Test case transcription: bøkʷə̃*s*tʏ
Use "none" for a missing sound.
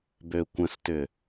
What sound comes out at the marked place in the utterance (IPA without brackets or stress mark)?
s